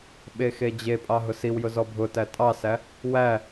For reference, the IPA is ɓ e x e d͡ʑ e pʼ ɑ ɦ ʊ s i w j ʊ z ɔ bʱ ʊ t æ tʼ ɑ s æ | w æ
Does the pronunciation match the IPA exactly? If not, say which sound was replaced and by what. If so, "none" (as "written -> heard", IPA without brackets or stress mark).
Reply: none